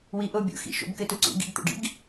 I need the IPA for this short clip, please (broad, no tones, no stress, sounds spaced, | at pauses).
w i ʔ o bʲ o̰ x ḭ ʃ o̰ b k ɘ t u ǀ ṵ ɡ ḭ ɡ t̪ o̰ ɖ ḭ ɡ